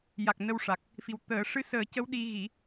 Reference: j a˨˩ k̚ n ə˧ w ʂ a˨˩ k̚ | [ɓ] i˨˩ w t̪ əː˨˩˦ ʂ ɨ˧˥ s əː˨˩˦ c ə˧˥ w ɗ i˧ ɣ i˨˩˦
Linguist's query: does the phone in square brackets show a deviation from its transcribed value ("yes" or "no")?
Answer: yes